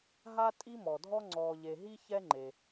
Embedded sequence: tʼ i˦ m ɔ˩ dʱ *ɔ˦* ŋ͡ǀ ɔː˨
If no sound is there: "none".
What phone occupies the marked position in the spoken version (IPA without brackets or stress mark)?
ɔ˦